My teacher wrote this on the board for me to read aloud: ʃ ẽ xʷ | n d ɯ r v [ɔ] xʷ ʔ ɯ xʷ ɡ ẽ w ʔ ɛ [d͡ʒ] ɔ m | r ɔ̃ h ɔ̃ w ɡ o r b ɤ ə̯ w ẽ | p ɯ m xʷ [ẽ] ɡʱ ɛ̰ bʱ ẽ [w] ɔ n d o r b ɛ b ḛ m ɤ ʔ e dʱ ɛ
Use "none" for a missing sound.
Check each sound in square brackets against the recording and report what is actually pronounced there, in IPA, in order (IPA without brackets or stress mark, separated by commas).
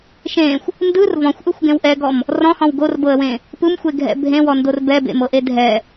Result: ɔ̃, ɡ, e, w